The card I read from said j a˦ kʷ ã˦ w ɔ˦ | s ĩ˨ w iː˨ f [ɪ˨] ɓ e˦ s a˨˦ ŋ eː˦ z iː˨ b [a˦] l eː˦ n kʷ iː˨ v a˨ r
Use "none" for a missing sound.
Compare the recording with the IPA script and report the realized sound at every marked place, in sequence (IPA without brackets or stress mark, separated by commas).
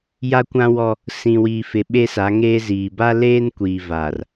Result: ɪ˨, a˦